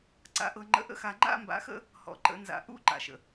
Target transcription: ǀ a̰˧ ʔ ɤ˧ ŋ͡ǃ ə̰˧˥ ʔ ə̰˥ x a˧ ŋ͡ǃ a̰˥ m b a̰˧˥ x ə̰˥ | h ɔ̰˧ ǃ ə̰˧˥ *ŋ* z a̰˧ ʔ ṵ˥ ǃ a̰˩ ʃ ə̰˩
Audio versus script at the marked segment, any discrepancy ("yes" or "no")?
yes